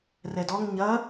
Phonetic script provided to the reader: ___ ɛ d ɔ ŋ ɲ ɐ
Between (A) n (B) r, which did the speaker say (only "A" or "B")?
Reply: B